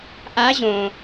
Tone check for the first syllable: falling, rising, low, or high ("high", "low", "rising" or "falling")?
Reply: rising